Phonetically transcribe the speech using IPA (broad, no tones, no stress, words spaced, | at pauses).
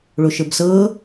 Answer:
ɭoʃə˞bsɤː